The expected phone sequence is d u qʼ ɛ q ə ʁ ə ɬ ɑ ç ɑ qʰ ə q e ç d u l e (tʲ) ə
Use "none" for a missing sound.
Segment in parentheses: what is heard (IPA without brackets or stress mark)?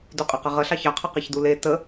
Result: t